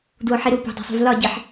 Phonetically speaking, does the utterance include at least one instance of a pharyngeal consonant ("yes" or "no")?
yes